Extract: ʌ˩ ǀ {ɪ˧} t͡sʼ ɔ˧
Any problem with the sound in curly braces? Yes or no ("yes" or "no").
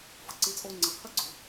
no